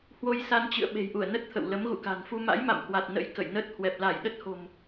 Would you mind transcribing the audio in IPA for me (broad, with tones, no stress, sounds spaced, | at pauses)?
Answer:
h w o˧ j s a˧ n t͡ɕ ɨ̰˧˨ ə̯ ɓ e̤˨˩ j ʔ u˧˩ ə̯ n ə˦˥ t̚ t̪ʰ ə̰˧˨ w l ə˨˦ m ɣ ṵ˧˨ k a̤˨˩ n f u˧ m a̰˧˥ j m a̰˧˨ m h w a˨˩ t̚ n ə̰˧˥ j k ə̰˧˨ j n ə˦˥ t̚ h w ɛ˨˩ p̚ l a˧˩ j ɗ ə˦˥ t̚ h o̤˨˩ m